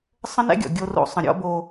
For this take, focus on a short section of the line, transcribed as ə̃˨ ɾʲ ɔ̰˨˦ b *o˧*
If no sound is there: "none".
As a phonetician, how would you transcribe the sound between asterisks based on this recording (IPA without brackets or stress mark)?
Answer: o˧